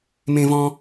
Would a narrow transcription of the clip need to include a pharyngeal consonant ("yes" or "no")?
no